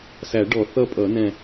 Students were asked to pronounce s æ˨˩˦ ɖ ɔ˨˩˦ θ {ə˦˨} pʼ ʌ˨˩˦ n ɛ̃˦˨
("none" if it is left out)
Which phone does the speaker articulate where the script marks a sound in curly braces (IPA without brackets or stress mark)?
ʌ˦˨